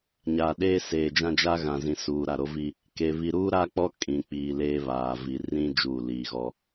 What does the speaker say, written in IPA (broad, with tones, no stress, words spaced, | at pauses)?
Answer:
ɲaː˨ɗeː˦seː˨d͡ʒã˦ d͡ʒa˦ɣã˨zĩ˨ suː˨ ɾa˦˨ɾo˦vi˦ | ke˨ βi˨ɾuː˦ ɾa˦k͡pɔ˦ kʼĩ˨k͡piː˨ leː˦ βaː˨vi˨ rĩ˦ d͡ʒuː˦˨liː˨ɣɔ˦